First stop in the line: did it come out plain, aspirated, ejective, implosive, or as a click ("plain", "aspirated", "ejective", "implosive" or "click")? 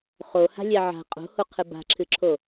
ejective